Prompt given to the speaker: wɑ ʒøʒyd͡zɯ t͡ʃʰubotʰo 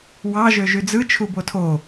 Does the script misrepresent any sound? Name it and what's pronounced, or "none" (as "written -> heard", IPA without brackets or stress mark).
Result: none